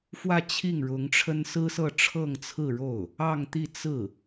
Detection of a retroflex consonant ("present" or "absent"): present